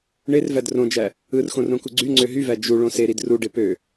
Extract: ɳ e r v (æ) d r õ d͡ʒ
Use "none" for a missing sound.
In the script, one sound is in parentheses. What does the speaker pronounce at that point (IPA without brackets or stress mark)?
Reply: æ